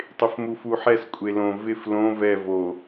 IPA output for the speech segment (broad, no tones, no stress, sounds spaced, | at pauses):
tˤ ɪ f m u f u ħ ɛ s kʷʼ e l õ v ɪ f l õ v ɛ v o